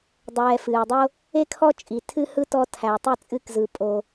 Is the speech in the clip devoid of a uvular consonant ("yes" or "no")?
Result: yes